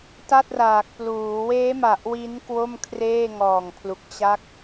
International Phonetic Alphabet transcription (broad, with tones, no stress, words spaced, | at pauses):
ta˥˩t̚raː˨˩k̚pluː˩˦ weː˦˥ma˨˩ʔ wi˦˥n kwo˥˩mkʰreː˥˩ŋɔː˨˩ŋpʰlu˨˩k̚ t͡ɕa˦˥k̚